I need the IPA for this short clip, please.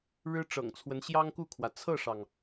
ɻ ɻ̩˥ ʈ͡ʂ ɤ̰˨˩ ŋ t͡sʰ w ə˧˥ n ɕ j ɑ˥ ŋ k u˥˩ kʰ w ä˩ t͡sʰ ɤ˥˩ ʂ ɑ˩ ŋ

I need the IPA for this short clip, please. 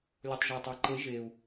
lʲ o tˤ ʒ ʏ u̯ tˤ æ ǃ e ʒ e u̯

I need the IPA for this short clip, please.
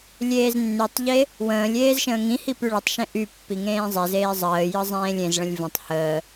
lʲ eː z nː y tˤ ʎ e | w ə̃ː lʲ eː z ʃ ə̃ː ŋ ĩ h i p y ɭ ə tˤ ʃ ẽ ʔ y pː i ŋ ẽː zˤ e z eː zˤ əː j ɯ zˤ ẽː lʲ ẽ z ɭ ə̃ lʲ v ə̃ tˤ h əː

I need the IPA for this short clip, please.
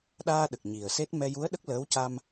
ɗ aː˧ ɗ ə˨˩ k̚ ɲ i˨˩ ə̯ s e˦˥ t̚ m ɛ˧ j u˧˥ ə̯ ɗ ə˦˥ k̚ l əː˧˥ w c a˧ m

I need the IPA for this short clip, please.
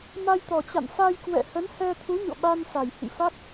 m a˧ j t̪ ɔ˨˩ t͡ɕ a̰˧˨ n f a˧ j k w ɛ̰˧˨ h ə˨˦ n h ɛ˧ t̪ʰ u˨˦ ɲ o̰˧˨ ɓ a˧ n s a˨˩ j h ḭ˧˨ f a˦˥ k̚

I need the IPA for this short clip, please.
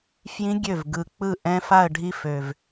f j ĩ˦˥ ɡʲ ø˥˩ v ɡ ɯ˨˩ k͡p ɯ˥˩ ʔ ɛ̃˦˥ f a˥˧ ə̯ ɖʱ i˦˥ f ø˨˩ v

